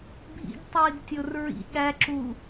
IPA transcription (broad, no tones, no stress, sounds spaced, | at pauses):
bʱ ḭ ɡ tˤ iː ɡ tʲ o r ɹ ḭ ɠ æ ǁ u